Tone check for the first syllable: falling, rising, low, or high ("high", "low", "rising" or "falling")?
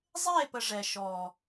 falling